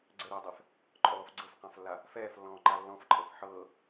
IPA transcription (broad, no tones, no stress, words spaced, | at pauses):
ɡ͡ǀəɾɵːdˤɛf | ǃʼɔːf ɡ͡ǀɤfqãflːa | fɛːflːɔ̃ːǃa lːɔ̃fǃʼɤf ħɤː